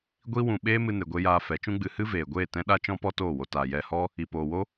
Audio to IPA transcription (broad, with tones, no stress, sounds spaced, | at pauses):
ɡʷ i˦ w ũ˧ ɓ eː˦ m ɨ˧ n e˨ ɡʷ e˧ j aː˧ f ɛ˨˦ t͡ʃ ũ˦ ɡ͡b ɨ˧ h ɨ˦ v eː˨ ɡʷ eː˦˨ t ɛ̃˦ ɗ a˦ t͡ʃ ɔ̃˦ p ɔ˦ t oː˦˨ w o˧ t aː˨ j ɛ˧ h ɔ˦ | i˨ p oː˨ w o˦